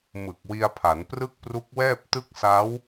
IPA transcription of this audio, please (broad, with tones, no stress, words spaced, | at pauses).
mɯ˨˩k̚wi˧a̯pʰa˩˦nprɯ˥˩k̚ pru˦˥k̚wɛː˥˩p̚tɯ˥˩k̚ sa˦˥w